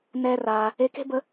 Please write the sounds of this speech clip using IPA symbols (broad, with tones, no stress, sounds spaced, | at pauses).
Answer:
n ɛː˧ r aː˩ | e˧ k e̤˥ b ə˧